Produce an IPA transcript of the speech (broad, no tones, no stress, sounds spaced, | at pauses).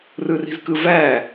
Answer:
r ɯ r i̤ z k ɯ v æː